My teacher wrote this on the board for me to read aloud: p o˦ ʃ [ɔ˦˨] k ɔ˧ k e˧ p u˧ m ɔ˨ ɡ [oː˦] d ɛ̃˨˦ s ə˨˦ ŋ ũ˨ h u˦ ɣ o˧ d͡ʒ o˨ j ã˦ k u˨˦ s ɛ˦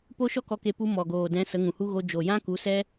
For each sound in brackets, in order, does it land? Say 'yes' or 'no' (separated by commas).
no, no